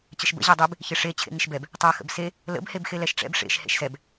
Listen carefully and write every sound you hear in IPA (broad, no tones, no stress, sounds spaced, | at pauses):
t͡ɕ ə ʃ b ə̰ ʑ e dˤ e b | ç ɪ ʂ e t͡ɕʰ ḛ ŋ ɪ ʃ b ɛ b | tˤ a x ə̰ b s e | l ə̰ b h e b x e l ɛ ʃ ʈ͡ʂ ɛ̰ b ʂ ḛ ʃ h ḛ ʃ s ɛ b